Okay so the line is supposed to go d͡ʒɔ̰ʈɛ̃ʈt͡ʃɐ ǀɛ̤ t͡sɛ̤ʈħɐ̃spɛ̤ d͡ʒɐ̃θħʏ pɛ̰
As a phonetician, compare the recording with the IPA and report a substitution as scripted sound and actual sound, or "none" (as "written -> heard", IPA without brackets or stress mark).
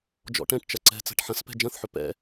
none